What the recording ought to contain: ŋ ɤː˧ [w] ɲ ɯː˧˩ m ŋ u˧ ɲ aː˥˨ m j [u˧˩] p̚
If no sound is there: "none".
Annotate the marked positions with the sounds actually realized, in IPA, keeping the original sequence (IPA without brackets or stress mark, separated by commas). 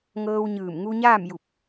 w, u˧˩